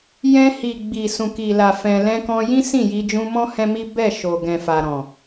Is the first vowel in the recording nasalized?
yes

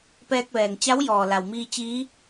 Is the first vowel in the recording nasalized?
no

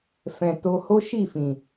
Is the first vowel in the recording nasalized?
yes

